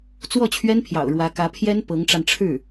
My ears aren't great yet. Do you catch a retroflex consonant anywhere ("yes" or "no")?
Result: yes